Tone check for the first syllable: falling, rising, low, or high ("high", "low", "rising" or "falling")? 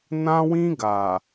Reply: high